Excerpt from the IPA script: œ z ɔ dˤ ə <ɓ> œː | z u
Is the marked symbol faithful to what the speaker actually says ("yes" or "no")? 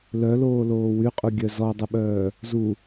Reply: yes